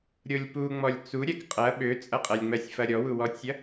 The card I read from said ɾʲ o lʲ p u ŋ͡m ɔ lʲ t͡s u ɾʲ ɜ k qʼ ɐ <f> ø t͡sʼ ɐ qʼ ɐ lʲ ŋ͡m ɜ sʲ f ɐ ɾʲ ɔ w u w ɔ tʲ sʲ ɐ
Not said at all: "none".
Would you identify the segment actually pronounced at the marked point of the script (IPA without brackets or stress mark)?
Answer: ɓ